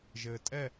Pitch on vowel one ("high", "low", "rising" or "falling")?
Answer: low